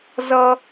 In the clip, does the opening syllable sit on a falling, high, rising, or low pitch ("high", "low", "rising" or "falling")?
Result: high